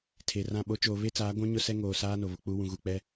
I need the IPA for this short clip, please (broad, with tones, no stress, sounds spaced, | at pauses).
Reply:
tʰ e˨ r ã˦˨ ɓ o˦ t͡ʃ oː˨ β e˦ t͡s aː˨˦ ɡʷ ũ˦ ɲ ʊ˦ s ɛ˦ ŋ oː˨ s aː˦ n o˨ β ʊ˨ k͡p u˦ w ũ˨ ɣ u˨ k͡p ɛ˦